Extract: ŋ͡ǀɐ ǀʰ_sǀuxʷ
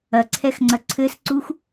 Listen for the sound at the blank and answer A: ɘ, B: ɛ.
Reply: A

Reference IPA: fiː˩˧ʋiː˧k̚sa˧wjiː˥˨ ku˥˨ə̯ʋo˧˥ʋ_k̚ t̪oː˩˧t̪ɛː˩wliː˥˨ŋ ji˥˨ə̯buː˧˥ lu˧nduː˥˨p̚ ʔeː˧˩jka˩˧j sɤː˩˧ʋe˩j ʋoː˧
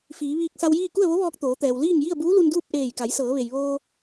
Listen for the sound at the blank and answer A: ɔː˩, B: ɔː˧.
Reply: B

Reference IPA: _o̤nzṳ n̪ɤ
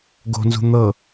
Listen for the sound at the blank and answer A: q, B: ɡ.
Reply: B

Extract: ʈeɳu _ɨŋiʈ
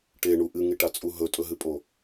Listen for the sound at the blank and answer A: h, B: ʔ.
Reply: B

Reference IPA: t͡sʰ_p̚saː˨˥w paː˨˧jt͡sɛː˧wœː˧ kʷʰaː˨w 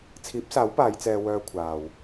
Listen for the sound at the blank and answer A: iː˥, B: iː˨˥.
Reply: B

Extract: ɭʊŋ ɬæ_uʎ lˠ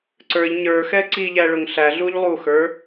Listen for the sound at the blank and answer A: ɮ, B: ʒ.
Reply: A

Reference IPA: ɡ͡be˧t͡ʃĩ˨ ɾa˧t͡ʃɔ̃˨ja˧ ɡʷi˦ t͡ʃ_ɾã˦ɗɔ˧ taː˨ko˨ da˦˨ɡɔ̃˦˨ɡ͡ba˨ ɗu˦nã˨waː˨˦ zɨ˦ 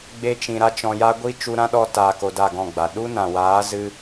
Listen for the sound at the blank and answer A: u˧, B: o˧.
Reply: A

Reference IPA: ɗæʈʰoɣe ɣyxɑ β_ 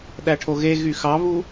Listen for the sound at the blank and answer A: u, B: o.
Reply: A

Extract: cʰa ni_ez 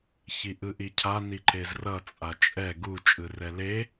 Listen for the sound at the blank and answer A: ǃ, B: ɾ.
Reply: A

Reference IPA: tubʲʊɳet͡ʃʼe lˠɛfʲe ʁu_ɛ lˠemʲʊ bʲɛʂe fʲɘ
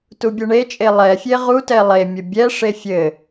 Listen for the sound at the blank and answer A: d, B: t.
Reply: B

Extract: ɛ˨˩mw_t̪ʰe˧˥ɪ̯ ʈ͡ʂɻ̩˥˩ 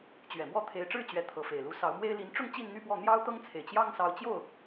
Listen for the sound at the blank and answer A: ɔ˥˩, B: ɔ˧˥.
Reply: A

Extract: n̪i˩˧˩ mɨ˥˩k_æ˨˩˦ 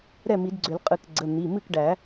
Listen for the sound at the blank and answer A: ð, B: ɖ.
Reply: B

